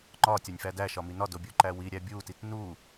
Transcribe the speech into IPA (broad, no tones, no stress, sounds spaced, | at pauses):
ŋ͡ǃ ɒ tʲ ɒ nʲ f æ d æ ʃ ɒ m i n ɒ d o bʲ o ǃ æ w i ɾʲ æ bʲ u t i t n u